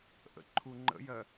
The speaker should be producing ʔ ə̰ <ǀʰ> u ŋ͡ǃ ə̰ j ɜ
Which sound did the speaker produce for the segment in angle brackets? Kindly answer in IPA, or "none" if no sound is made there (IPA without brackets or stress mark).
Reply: ǃʰ